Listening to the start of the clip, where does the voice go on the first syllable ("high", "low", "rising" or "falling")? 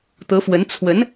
rising